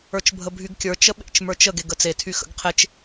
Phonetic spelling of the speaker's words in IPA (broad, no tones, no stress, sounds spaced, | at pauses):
ə˞ t͡ʃ bʱ ə bʱ y ɡ kʲ ə˞ t͡ʃ ə ɓ ḛ t͡ʃ m ə˞ t͡ʃ ə ɡ e ɡ ə t͡s e tʰ y x ə̰ ɡ qʰ e t͡ʃ